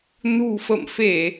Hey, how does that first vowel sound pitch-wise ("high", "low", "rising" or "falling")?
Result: low